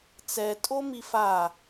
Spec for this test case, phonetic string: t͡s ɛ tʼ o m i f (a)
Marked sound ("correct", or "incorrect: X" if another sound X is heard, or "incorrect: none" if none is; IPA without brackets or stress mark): correct